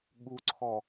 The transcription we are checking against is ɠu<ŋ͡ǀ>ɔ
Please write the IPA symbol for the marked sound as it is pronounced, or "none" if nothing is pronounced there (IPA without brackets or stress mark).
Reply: ǀʰ